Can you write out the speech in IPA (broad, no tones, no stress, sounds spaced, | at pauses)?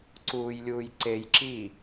ǀ uː j lʲ uː j ǀ e j ǁ i